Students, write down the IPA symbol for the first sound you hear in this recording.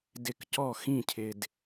d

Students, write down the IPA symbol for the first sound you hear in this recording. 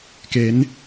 k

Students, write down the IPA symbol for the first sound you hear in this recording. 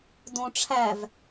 d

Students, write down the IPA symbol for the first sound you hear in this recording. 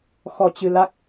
x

